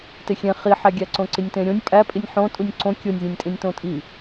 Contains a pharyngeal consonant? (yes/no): yes